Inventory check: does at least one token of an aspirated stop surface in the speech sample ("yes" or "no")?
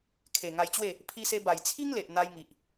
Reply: yes